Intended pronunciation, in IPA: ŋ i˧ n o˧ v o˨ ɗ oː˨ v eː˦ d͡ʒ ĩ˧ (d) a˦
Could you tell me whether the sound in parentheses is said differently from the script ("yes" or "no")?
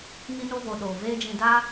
no